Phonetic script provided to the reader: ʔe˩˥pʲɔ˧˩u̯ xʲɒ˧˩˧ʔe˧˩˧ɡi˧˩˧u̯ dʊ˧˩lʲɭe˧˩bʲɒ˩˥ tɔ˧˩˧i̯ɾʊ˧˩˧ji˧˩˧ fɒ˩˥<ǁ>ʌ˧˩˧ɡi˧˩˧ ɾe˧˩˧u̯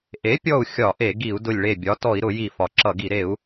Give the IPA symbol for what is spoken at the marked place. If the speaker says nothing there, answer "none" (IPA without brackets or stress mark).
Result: ǁ